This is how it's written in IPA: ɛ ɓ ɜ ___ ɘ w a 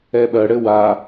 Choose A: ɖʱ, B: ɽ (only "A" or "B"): B